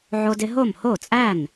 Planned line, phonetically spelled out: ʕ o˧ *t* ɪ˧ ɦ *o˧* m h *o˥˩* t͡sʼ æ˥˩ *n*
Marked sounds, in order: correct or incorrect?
incorrect: d, incorrect: o˥˩, correct, correct

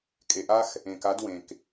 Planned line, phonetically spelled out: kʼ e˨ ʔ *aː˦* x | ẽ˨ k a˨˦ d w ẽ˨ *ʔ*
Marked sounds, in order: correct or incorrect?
incorrect: a˦, incorrect: k

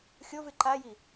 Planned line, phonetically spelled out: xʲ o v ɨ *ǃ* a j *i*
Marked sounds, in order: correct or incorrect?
correct, correct

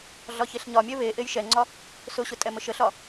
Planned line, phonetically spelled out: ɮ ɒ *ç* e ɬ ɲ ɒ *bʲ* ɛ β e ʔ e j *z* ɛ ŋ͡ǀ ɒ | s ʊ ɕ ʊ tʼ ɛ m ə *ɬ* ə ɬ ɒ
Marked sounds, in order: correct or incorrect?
correct, incorrect: mʲ, incorrect: ʃ, incorrect: ʃ

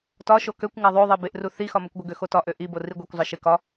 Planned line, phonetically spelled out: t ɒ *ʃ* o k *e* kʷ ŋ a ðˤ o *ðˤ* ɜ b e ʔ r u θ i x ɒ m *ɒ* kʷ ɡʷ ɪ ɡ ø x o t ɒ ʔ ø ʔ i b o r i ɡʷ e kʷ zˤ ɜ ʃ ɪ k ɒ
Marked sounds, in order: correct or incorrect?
correct, incorrect: ø, correct, correct

